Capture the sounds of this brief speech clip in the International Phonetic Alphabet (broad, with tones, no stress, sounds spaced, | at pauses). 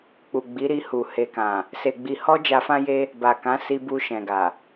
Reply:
k͡p u˨ ɡ͡b i˨˦ ɾ i˧ h u˨ h e˨ k ã˨ | s e˨ ɡ͡b i˨ h ɔ˧ d͡ʒ a˧ f ã˦ j e˦ | b a˨ k ã˨˦ s i˧ b u˧ ʃ ɛ̃˨ ɡ a˨